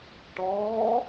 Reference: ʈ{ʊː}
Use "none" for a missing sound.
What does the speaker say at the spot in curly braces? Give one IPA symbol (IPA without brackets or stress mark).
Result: ɔː